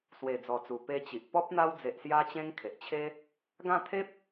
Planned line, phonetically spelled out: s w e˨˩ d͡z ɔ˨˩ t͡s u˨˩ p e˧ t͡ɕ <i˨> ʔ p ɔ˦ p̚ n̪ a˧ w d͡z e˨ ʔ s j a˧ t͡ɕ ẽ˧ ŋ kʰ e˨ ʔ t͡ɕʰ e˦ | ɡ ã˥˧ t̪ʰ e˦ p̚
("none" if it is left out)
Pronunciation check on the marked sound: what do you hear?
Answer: i˨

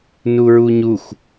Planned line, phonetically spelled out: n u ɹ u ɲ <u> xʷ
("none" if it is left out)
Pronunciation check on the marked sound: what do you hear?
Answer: u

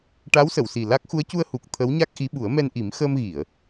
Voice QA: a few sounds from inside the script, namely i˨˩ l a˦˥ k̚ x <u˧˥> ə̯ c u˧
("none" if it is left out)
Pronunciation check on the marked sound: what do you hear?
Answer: u˧˥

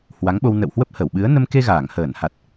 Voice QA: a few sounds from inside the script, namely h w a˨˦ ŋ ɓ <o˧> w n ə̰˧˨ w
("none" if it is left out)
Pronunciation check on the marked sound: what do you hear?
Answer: o˧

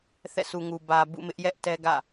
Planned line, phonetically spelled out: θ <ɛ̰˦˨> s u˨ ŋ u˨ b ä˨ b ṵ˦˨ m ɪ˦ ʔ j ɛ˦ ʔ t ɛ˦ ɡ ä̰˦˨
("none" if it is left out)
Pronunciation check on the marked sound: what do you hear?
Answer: ɛ̰˦˨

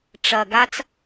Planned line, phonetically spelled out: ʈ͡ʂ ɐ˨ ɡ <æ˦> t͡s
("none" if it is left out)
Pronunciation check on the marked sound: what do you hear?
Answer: a˦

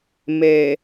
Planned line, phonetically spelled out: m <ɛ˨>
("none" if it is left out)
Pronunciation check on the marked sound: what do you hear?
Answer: e˨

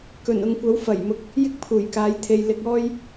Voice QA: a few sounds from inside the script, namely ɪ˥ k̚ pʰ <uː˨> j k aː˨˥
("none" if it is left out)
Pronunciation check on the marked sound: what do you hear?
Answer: uː˨˩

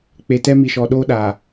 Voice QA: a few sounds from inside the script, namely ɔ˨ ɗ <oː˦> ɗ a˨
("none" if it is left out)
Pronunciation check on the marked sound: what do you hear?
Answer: oː˦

